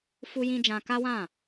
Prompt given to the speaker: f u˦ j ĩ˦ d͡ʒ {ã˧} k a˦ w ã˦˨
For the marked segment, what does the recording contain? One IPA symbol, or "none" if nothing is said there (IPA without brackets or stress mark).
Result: ã˧